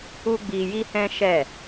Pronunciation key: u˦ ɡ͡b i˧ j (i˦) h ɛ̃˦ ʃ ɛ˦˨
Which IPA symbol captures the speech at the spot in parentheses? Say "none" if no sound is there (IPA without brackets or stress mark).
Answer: i˦